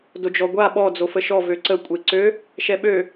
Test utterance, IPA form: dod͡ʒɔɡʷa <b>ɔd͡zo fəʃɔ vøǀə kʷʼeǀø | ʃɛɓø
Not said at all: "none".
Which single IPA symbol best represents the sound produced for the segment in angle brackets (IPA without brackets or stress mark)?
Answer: ɓ